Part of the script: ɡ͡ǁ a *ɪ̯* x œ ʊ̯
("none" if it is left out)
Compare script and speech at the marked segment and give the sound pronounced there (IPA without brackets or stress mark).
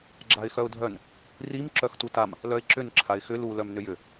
ɪ̯